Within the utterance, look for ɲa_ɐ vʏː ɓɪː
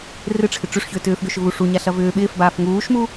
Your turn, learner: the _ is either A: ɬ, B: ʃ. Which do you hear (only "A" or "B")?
A